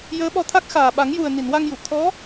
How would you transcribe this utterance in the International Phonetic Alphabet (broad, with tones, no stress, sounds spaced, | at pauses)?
j əː˧˥ ɓ ɔ˧ t̪ʰ a˦˥ k̚ x aː˨˩ ɓ a˨˩˦ ŋ j u˨˩ ə̯ n i˨˩˨ n w a˧ ŋ j u˨˩˨ t̪ʰ ɔ˧˥